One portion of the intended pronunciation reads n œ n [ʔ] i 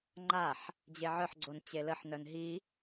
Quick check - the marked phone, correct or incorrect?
incorrect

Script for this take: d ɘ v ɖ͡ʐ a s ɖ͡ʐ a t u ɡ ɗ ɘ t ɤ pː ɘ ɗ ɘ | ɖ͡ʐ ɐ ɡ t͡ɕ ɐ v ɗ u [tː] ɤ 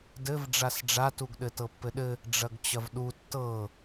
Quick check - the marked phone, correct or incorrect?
correct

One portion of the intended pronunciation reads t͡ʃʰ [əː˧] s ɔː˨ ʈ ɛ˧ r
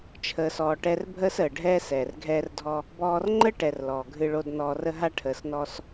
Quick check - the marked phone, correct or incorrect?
incorrect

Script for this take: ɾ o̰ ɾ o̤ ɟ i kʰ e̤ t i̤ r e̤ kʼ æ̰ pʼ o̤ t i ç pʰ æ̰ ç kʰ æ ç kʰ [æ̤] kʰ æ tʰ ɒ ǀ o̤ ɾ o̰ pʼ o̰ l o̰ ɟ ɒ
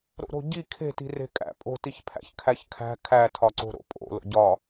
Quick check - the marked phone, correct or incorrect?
correct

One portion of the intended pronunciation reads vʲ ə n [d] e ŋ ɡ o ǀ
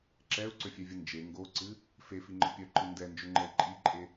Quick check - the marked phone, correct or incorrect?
incorrect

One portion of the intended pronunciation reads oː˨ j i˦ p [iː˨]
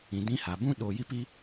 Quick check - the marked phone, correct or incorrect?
incorrect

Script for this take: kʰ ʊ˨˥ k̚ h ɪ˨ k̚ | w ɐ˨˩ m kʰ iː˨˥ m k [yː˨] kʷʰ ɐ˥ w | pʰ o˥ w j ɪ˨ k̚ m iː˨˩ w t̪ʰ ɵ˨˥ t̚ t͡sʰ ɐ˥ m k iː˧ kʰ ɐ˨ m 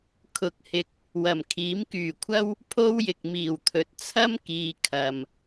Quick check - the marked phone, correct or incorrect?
incorrect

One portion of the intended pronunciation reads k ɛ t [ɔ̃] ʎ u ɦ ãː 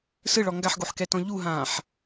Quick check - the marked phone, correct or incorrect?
correct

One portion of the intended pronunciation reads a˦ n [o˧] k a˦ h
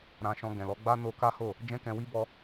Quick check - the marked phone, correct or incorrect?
correct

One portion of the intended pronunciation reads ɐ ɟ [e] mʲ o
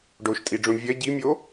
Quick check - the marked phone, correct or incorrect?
incorrect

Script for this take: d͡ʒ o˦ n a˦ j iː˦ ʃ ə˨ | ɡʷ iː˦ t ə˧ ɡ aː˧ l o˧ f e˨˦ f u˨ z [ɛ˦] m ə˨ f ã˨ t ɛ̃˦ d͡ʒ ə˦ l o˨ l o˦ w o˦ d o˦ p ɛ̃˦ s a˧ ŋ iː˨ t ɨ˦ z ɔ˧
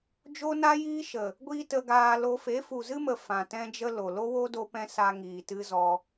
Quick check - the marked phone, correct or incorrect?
incorrect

